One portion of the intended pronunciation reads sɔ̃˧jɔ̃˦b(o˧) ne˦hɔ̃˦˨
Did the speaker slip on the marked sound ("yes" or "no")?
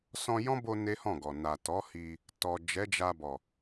no